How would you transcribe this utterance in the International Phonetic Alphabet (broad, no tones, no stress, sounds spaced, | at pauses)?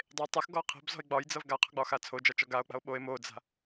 dˤ e tˤ ʌ x ɡ ɔ qʰ e̤ b z ɔ̤ e̯ ɡ͡b ɒ j d͡z ʌ v ɡ a qʰ ɔ̤ ɡ͡b ɒ x a t͡sʰ o d͡ʒ ɒ t͡ʃ ɔ ɡ a o̯ k͡p a̤ o̯ ɓ o e̯ m o d͡z a̤